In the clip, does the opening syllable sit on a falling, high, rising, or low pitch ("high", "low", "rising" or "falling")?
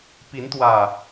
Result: rising